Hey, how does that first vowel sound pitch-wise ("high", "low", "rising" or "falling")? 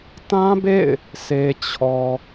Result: high